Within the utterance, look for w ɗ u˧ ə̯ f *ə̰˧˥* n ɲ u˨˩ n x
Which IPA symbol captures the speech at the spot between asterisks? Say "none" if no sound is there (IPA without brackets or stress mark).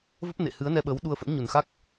ə̰˧˥